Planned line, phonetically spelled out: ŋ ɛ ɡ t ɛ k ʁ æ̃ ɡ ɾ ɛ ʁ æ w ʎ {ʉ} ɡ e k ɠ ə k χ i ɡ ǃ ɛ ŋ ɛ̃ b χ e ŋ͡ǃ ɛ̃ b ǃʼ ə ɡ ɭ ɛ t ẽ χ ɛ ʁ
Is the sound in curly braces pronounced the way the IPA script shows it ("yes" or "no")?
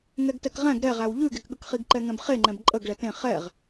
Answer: yes